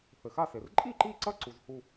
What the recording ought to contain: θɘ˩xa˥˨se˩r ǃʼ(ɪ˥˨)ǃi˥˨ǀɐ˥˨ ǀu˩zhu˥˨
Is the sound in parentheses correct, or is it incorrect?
incorrect